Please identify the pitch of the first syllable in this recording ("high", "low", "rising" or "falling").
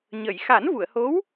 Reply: low